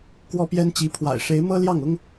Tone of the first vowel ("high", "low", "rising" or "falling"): high